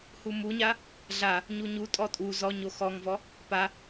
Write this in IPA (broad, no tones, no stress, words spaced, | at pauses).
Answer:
humuɲa | ɮa | ɲuɲutʼɔ tʼu zɔ ɲoxɔŋvɔ | pa